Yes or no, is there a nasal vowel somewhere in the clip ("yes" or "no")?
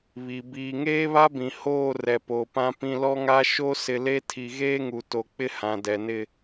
yes